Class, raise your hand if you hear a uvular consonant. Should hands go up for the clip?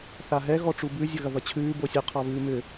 yes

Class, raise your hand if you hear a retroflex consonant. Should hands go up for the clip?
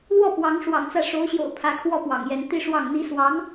yes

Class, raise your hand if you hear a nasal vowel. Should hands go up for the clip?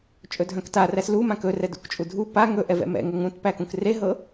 yes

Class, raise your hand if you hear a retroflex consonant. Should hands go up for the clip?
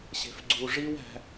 yes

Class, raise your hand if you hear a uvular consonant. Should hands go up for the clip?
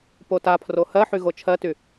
no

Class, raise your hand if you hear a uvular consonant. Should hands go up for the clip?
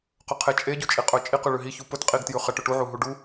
yes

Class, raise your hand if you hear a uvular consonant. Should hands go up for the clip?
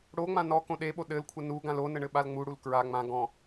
no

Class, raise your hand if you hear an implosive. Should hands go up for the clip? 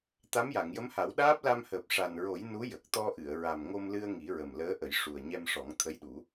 yes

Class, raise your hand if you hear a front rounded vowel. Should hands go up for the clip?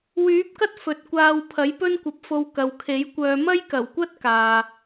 yes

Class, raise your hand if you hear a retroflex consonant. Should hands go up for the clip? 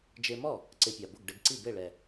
yes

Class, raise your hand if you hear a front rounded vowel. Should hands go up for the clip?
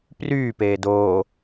yes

